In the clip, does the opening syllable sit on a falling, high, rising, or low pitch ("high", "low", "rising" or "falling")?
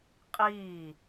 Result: falling